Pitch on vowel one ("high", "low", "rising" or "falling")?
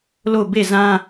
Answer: falling